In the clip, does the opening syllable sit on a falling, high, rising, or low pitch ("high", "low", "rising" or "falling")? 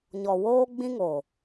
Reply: low